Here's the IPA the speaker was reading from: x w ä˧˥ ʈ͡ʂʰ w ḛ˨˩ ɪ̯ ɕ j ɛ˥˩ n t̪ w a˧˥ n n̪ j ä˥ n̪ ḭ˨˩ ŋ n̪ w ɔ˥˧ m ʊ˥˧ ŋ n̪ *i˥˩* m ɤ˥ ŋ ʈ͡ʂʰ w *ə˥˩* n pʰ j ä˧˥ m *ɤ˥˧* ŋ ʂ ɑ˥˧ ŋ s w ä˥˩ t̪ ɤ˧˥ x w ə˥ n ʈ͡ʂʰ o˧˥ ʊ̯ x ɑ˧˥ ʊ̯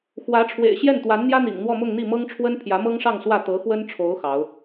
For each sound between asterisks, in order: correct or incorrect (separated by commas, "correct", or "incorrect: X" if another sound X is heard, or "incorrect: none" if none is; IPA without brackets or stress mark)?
correct, incorrect: ə˥, incorrect: ɤ˥